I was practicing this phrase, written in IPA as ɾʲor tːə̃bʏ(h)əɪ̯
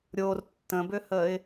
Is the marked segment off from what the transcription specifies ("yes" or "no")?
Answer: no